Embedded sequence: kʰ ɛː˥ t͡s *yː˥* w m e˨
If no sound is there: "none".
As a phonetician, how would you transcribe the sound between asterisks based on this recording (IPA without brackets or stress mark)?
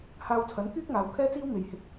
iː˥